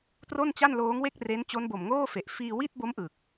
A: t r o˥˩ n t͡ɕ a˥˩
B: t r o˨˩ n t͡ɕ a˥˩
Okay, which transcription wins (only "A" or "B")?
A